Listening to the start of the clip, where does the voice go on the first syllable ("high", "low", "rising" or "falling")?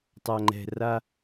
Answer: low